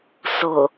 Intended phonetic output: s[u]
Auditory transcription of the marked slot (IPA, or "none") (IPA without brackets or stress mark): ʊ